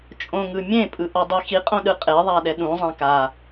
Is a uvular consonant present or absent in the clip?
present